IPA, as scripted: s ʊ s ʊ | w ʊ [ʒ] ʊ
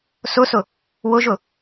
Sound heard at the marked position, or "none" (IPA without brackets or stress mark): ʒ